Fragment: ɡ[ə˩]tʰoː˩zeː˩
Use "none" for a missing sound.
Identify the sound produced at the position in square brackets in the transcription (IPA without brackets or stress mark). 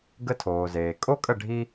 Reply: ə˧